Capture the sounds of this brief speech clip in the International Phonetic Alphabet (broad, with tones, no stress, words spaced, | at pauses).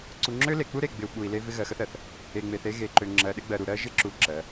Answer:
ǀu˨ŋ͡ǁø˦le˨k͡pu˦ ɾe˨ɡ͡bɪ˨u̯ ɓu˨i̯le˦ vɪ˦ɣɜ˨xə˦θɜ˨θ | e˨ŋ͡me˨θ e˦ ɣe˨ǃø˨ ŋ͡ǁɜ˨ɗɪ˦ɡ͡bɜ˨ɾu˨ ɾɜ˦ ʒɪ˦ǁu˨ ǁɜ˨˦